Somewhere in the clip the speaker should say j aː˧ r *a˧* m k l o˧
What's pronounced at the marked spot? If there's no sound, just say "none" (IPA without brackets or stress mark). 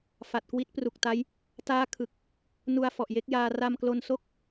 a˧